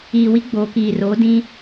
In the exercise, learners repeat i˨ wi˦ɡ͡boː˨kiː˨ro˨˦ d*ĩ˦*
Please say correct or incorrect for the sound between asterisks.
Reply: correct